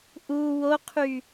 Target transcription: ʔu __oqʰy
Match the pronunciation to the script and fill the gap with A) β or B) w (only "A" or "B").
B